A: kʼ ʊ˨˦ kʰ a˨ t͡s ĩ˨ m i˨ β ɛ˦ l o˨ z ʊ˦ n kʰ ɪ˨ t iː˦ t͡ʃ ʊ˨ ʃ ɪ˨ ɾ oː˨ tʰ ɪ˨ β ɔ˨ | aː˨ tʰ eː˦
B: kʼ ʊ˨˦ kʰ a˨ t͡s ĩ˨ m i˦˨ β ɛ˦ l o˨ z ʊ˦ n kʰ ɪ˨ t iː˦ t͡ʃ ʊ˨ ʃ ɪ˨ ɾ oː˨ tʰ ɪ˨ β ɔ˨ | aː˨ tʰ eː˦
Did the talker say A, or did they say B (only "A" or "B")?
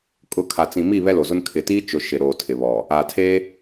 B